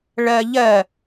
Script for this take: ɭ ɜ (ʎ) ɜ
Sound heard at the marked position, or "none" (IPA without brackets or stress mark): ʎ